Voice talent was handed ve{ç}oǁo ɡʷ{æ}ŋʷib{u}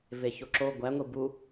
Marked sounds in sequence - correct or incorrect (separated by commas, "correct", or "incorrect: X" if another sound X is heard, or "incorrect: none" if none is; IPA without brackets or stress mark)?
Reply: correct, correct, correct